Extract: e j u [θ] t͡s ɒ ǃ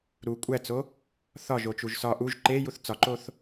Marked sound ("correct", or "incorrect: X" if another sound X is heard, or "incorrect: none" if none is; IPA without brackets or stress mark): correct